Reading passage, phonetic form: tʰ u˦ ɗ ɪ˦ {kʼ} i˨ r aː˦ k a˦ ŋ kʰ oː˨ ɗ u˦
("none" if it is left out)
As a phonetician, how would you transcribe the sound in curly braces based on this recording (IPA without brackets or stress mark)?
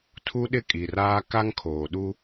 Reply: kʼ